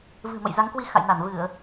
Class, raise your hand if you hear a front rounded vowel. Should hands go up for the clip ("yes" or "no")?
no